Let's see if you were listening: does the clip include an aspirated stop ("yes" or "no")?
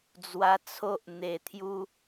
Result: yes